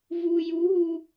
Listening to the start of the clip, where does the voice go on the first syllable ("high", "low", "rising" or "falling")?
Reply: low